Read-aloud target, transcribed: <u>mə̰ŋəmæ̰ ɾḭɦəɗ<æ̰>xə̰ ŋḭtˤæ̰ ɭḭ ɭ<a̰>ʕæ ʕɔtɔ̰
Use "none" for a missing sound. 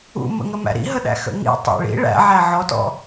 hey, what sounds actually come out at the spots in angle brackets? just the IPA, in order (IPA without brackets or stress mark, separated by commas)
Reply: ṵ, æ̰, æ̰